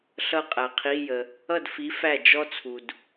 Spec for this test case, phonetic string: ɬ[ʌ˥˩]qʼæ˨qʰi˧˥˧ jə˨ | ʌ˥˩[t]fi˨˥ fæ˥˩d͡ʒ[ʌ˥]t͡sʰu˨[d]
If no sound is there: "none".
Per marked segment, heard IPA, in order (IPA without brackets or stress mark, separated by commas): ʌ˥˩, d, ɔ˥, d